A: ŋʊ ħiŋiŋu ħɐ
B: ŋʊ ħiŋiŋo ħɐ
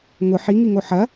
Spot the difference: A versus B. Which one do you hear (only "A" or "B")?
B